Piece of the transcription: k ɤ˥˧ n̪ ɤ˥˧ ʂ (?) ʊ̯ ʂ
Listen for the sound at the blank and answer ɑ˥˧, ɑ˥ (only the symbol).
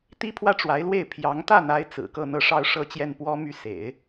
ɑ˥˧